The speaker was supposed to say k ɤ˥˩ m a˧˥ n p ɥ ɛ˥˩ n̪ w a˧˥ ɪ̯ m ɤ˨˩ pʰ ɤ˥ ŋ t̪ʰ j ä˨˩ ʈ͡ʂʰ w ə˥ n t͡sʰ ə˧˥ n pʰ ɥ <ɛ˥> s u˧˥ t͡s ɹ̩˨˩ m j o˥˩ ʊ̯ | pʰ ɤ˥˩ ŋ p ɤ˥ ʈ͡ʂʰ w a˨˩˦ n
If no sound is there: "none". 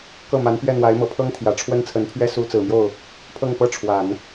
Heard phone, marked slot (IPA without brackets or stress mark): ɛ˥